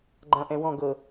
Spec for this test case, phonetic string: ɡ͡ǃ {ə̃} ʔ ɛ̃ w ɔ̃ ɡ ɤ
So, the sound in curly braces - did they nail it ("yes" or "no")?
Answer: no